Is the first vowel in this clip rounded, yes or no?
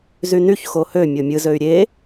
yes